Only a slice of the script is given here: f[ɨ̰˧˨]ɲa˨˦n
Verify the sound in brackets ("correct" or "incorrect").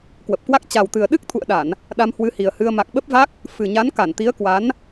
incorrect